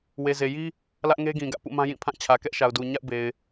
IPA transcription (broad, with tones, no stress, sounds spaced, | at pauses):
w e˨ z e˨ j i˦ | l ä˦ ʔ ŋ e˦ ɡ ĩ˨ ɡ ä̰˦˨ p ṵ˦˨ m ã˦ j ĩ˦˨ pʰ ã˦˨ t͡ɕʰ ä˨ k ɛ˦ ʔ ʃ a˨ ʊ̯ d u˨ ɲ a̰˦˨ ʊ̯ b e˨ ɪ̯